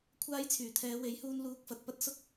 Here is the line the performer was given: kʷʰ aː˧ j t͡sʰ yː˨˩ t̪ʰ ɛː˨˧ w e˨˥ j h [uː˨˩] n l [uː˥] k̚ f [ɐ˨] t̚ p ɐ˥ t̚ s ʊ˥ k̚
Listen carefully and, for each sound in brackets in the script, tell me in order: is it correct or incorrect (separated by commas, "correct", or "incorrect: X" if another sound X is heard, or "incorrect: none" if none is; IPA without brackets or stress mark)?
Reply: incorrect: uː˧, incorrect: uː˧, correct